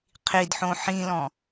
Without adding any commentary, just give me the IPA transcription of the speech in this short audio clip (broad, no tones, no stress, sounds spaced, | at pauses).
qʰ i d ħ õ ħ ĩ l ɔ̃